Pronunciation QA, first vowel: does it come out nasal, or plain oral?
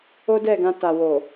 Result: oral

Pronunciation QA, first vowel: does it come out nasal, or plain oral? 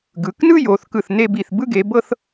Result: oral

